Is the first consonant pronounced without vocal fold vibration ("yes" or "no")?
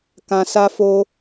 yes